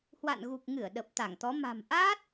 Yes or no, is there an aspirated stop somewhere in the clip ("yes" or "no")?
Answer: no